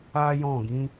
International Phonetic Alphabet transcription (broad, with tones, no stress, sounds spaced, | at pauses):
a˦ j ɔ̃˦˨ ɡ ĩ˨˦